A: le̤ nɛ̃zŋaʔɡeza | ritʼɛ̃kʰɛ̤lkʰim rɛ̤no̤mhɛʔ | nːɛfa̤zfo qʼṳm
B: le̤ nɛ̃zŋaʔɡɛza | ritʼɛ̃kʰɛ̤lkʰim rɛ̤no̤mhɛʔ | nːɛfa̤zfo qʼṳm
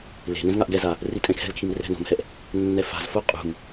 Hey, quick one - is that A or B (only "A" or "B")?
B